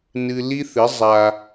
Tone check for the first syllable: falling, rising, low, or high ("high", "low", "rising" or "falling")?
high